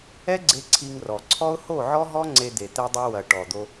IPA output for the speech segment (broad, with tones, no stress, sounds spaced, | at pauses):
ɛ˦ ɡ͡ǀ e˧ ǀʰ i˧ ŋ r ɔ˨ ǀʰ ɔ˦ ʊ̯ h o˦˨ ʕ ɔ˦ ɦ ɔ˦ ŋ͡ǀ e˧ d̪ e˨ t̪ ɛ˧ dˤ ɐ˧ w ɐ˨ ʈ ɔ˨ d̪ o˧